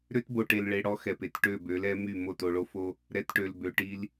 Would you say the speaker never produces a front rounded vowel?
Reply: no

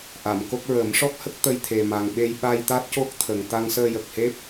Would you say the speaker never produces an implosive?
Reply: no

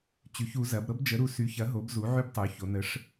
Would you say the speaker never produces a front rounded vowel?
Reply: no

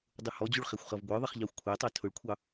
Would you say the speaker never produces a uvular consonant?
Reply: no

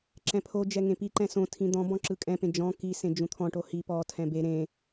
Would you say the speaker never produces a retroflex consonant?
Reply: no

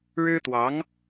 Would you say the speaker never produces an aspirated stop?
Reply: yes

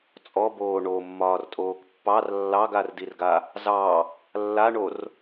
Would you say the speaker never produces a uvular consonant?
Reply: yes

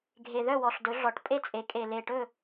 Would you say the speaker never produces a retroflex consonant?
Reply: no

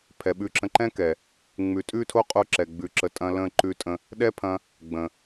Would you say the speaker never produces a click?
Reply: no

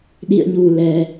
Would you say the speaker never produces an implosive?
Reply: no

